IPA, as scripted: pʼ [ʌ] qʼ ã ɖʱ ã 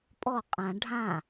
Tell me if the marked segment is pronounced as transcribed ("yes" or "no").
no